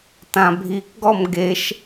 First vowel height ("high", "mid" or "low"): low